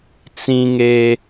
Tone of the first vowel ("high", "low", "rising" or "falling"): high